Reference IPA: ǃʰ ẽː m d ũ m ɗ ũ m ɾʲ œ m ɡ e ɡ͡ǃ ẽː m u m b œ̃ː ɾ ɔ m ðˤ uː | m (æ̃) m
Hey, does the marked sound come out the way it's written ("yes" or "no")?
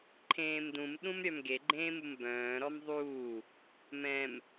no